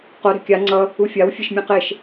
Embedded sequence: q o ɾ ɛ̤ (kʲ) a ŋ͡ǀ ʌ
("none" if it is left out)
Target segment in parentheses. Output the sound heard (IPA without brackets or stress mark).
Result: kʲ